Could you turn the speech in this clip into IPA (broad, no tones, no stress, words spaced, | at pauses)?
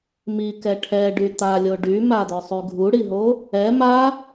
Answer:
mikɛ ʈʰɛɖy t̪alʲo ɖymad̪œsˤy ɡʱuɽiɦo | ɛ ma